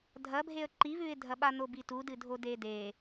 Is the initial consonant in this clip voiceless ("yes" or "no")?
no